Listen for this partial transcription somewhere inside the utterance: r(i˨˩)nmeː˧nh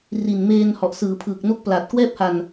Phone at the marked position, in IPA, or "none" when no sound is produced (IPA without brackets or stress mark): i˨˩